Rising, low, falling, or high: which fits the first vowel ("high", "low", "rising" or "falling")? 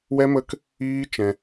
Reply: high